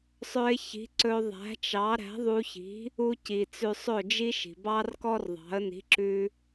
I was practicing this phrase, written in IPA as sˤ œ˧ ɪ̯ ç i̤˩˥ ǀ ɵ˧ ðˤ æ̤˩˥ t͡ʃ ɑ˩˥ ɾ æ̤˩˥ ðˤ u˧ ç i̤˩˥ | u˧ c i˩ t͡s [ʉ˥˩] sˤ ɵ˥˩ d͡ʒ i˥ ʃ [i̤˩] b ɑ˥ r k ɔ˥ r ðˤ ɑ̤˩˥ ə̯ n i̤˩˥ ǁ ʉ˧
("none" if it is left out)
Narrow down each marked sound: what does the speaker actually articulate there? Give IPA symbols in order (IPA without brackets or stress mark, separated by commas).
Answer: ʉ˧, i̤˩